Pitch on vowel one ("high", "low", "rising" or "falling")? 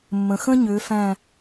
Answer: low